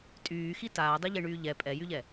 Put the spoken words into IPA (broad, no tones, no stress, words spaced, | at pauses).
tʼyːxi taːdˤeʎeɳyː ʎɛ pʼɛjyʎɛ